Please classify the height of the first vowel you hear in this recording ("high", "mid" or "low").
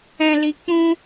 mid